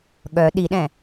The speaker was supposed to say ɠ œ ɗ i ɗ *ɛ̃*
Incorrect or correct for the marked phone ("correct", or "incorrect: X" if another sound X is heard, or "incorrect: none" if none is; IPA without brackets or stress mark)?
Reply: correct